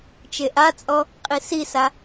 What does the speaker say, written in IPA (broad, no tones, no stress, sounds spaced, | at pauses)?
t͡ʃ e ʔ a t͡sʼ ɔ | qʼ i s i s a